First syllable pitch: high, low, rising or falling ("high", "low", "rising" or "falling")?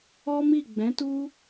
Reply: high